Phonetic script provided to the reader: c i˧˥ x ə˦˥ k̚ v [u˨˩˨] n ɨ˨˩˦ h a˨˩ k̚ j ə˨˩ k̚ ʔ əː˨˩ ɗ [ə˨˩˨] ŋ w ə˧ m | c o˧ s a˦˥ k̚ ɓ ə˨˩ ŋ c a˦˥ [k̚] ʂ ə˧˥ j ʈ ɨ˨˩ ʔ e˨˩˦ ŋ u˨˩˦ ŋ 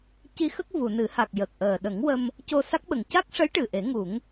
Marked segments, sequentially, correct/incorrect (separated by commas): correct, incorrect, correct